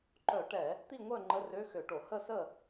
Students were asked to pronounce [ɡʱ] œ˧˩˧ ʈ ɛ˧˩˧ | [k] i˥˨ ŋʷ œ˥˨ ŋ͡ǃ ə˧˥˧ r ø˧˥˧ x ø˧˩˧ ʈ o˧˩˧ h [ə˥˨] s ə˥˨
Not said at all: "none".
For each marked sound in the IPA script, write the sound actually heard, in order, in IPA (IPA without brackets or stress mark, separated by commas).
ǃ, t̪, ə˥˨